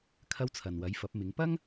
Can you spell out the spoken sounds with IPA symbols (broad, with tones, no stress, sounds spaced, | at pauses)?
kʰ ɐ˥ w t͡sʰ ɐ˨ n w ɐ˨˥ j f ɐ˨˥ p̚ m ɪ˨˥ ŋ p ɐ˥ ŋ